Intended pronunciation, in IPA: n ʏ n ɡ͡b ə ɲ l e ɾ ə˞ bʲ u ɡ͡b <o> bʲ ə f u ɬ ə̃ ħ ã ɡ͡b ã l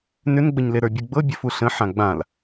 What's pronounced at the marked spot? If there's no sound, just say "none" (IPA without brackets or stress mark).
ɤ